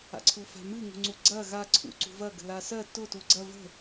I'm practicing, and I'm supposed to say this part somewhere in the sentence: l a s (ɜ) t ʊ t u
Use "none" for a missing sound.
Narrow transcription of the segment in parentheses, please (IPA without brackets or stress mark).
ɜ